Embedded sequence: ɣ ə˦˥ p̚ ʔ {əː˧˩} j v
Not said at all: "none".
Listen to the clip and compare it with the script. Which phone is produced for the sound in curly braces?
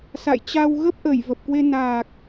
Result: ə˧˩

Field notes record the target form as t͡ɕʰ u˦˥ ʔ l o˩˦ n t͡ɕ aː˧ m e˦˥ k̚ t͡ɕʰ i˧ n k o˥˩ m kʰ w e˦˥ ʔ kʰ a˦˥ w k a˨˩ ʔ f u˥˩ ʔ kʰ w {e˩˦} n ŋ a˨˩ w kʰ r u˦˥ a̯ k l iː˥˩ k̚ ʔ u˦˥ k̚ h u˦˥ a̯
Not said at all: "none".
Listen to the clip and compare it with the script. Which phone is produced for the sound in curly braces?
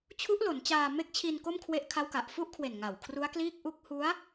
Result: e˨˩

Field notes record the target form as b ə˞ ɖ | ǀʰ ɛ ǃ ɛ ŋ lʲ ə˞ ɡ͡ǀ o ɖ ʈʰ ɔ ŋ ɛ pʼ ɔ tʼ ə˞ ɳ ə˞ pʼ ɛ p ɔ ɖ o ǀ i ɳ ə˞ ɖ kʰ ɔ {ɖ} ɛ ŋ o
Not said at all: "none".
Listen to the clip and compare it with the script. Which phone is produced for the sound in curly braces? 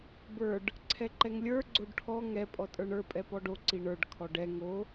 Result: ɖ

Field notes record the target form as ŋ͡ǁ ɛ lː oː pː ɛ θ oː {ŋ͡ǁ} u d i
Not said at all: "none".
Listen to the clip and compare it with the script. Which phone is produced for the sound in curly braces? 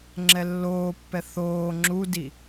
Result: ŋ͡ǁ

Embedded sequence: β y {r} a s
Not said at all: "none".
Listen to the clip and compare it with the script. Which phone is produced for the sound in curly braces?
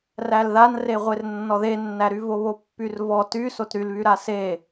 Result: ɾ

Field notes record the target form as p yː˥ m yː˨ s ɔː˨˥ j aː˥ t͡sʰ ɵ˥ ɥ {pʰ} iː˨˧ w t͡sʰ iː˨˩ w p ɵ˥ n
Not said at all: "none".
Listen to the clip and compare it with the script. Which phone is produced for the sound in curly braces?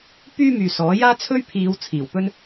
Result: pʰ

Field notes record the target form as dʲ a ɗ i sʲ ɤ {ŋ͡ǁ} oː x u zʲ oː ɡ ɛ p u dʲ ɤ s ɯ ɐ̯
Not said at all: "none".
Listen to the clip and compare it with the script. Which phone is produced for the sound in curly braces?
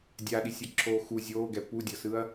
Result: ǁʰ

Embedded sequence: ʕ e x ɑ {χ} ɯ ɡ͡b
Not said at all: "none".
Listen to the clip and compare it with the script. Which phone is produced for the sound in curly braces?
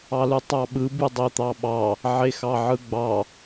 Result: ʕ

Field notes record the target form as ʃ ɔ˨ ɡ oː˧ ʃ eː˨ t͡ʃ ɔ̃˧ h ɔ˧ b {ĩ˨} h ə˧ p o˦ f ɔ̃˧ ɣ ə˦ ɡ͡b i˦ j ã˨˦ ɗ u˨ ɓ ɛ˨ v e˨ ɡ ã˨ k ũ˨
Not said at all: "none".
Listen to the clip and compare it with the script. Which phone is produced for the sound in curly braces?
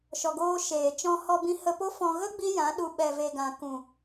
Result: ĩ˧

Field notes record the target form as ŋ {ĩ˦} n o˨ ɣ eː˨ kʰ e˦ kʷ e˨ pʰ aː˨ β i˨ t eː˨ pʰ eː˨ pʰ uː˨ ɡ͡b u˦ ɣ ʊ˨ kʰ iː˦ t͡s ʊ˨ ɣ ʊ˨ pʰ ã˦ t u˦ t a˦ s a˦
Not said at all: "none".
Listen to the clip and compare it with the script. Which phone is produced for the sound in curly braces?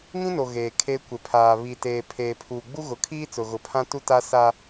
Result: ĩ˦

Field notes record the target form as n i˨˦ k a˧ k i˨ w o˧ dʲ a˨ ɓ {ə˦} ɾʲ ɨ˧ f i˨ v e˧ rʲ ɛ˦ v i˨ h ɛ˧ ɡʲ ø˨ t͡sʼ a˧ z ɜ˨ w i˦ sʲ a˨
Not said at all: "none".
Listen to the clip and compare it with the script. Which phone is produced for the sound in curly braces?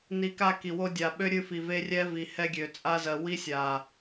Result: ø˦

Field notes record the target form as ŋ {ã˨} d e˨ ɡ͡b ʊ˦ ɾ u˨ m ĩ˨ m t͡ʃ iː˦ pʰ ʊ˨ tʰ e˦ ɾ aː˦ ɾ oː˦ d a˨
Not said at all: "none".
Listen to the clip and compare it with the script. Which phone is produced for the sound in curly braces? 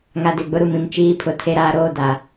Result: a˨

